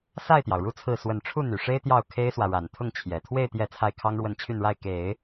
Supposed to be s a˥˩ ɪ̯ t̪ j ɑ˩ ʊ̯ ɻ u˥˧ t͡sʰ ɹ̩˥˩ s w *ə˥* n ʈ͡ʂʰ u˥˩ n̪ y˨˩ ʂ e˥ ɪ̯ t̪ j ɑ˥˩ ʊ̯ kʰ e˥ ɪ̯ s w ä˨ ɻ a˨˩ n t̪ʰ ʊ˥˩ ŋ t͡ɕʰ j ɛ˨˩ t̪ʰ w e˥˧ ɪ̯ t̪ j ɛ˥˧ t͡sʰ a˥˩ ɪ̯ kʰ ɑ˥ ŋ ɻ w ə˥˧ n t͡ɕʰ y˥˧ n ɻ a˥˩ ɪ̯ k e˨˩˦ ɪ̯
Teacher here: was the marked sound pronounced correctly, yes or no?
no